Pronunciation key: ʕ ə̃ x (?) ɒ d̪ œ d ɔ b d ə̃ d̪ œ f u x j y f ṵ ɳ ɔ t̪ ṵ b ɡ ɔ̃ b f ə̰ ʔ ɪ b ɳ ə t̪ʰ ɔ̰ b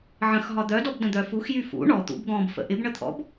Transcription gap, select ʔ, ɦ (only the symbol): ɦ